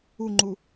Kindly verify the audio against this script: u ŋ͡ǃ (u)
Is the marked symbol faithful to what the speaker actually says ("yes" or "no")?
yes